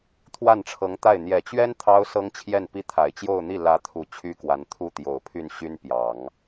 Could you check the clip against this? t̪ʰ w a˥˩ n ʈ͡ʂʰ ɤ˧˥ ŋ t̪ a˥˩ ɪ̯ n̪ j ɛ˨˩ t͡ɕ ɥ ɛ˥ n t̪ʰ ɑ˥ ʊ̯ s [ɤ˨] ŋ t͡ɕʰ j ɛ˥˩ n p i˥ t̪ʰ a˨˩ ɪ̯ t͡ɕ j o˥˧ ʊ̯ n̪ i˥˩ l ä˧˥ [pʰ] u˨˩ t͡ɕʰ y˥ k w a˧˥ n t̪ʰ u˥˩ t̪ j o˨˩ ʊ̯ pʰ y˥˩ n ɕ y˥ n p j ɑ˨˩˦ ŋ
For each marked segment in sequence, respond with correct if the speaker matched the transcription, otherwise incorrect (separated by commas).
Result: incorrect, incorrect